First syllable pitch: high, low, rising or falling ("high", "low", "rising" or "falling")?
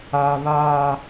high